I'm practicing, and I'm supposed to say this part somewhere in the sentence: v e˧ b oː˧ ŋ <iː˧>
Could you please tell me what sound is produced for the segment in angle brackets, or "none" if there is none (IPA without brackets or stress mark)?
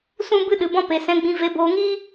iː˦